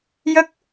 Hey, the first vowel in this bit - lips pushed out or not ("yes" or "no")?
no